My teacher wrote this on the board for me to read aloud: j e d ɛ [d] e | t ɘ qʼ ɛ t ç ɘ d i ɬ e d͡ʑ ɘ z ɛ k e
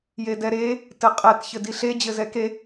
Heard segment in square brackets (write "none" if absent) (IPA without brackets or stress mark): ɾ